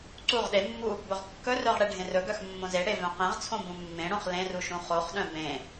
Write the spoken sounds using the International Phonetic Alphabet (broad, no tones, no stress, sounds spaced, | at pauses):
ǀ u ʁ ɗ e mː u | b ɵ ʁ kː ɵ r œ ʁ ɽ e ɖʱ ẽ r ɵ ɡ œ x mː õ z e ɽ e v œ̃ q ẽ ʁ t͡sʰ õ b ũ mː ẽ ɽ õ χ l ẽ r u ʃ ũ χ o χ ɗ œ̃ b ẽ